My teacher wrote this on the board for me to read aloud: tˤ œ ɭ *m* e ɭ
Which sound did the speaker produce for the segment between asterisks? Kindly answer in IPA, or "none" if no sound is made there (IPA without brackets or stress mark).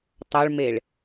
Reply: m